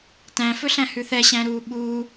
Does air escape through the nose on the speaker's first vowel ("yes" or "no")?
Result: yes